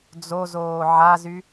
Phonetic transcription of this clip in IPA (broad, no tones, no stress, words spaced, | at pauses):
d͡zozoː ʕazy